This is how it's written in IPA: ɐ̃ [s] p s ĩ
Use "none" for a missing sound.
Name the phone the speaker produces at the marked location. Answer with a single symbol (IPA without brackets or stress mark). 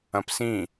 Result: none